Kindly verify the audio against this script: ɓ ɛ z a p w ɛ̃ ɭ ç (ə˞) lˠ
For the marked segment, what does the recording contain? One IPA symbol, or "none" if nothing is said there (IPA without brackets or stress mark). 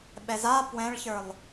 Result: ə˞